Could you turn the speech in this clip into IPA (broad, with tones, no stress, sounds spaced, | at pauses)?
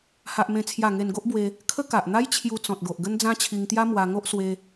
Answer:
h a˦ ʔ m ẽ˥˧ t͡sʰ j a˥˧ ŋ e˧ n ɡ o˦ ʔ b w e˧ | kʰ ə˦ k a˨ ʔ n̪ a˦ j t͡ɕʰ j u˧ t͡s ɔ̃˨ t̚ ɡ o˨ ʔ ɡ ə˦ n d͡z ã˦ t͡ɕʰ i˧ ŋ t̪ j a˦ m w a˧ ŋ o˦ ʔ s w e˧